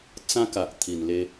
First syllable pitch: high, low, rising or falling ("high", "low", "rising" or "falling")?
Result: high